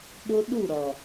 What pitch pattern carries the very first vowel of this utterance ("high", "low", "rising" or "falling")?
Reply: high